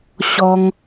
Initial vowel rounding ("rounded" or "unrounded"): rounded